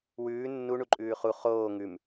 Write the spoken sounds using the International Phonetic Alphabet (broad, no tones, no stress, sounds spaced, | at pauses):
w ʉː nː u ɳ u ǃʼ ʉː χ u χ oː ŋ ʉ m